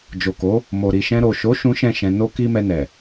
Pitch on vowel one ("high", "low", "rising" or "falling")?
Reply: low